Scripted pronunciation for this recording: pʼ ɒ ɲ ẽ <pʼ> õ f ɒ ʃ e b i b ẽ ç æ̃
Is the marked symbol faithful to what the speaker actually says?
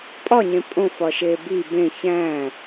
yes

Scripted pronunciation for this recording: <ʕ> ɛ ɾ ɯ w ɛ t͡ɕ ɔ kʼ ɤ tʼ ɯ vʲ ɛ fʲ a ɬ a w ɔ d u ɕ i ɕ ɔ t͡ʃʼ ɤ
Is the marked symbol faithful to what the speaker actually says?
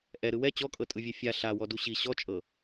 no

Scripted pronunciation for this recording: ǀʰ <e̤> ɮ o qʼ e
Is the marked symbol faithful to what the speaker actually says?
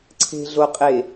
yes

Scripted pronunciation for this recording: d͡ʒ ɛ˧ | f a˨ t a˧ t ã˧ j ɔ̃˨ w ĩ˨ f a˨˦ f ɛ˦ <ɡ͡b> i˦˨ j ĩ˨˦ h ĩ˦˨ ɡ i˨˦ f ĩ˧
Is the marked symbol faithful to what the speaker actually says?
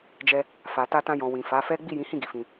yes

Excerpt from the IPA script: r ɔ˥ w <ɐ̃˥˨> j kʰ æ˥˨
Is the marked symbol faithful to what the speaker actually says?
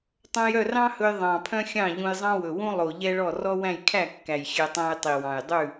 no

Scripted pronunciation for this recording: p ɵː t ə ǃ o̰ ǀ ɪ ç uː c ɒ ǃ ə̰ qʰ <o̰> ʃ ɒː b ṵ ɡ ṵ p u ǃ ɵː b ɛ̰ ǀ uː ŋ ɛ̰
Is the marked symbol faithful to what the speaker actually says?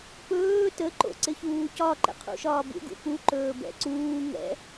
no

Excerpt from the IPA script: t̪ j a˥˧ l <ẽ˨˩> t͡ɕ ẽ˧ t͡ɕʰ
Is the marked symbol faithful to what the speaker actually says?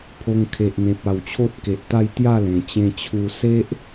yes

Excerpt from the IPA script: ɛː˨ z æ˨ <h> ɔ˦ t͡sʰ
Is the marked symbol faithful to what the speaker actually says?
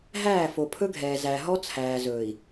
no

